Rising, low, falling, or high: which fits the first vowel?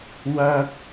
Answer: high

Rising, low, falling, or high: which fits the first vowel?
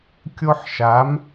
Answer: high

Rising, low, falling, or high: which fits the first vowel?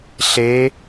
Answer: rising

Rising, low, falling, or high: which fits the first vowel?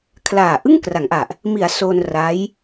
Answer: low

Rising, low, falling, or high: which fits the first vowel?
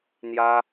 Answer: high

